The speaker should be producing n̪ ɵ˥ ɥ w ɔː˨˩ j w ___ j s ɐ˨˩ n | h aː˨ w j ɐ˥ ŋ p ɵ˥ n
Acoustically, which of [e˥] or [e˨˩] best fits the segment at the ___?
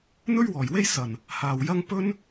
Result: e˥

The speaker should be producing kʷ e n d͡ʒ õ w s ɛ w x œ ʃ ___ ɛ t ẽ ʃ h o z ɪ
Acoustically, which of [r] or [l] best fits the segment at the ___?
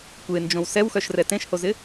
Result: r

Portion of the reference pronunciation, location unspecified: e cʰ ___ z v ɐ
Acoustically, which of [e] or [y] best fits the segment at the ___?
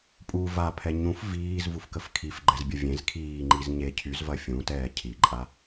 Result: y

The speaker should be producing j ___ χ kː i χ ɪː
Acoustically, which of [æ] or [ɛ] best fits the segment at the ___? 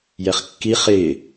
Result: ɛ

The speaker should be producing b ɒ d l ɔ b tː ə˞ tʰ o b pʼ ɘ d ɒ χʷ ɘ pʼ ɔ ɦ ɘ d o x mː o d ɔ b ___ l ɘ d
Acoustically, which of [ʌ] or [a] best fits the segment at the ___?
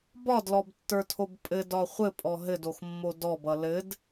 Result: ʌ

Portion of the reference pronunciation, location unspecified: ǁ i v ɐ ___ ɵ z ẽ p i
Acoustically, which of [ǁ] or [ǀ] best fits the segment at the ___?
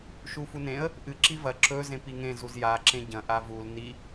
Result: ǁ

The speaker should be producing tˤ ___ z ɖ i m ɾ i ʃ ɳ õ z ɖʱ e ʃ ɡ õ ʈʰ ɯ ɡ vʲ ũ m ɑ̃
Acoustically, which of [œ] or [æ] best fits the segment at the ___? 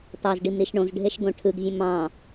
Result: æ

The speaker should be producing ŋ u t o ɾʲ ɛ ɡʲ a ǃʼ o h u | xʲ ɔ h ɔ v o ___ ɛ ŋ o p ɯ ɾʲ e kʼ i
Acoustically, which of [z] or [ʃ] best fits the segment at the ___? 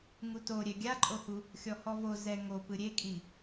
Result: z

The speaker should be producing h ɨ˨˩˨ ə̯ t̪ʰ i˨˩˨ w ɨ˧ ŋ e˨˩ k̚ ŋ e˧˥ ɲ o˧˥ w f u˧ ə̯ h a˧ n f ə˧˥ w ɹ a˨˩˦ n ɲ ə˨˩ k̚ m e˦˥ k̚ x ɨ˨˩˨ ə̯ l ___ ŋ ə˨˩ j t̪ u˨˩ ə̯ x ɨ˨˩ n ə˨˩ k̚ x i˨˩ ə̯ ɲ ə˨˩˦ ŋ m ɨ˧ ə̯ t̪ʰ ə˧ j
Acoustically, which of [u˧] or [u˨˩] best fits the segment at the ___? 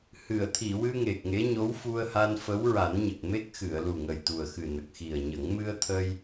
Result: u˨˩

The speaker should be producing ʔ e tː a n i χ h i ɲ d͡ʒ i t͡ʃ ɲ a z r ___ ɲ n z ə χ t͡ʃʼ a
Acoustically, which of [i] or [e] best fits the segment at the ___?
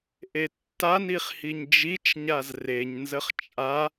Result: e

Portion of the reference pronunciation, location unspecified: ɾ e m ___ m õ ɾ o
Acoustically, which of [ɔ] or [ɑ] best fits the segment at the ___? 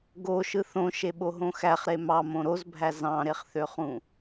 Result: ɑ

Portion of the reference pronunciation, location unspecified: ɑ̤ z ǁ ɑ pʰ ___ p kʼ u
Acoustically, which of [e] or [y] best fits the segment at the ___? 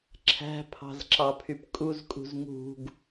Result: y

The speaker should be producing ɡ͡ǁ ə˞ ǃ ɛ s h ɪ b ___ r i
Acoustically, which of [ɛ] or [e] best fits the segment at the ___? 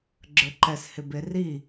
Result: e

